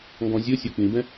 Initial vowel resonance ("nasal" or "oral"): nasal